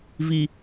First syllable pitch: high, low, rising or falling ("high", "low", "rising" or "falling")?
low